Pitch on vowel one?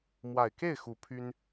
low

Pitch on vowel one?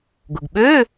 low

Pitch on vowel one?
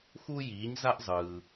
high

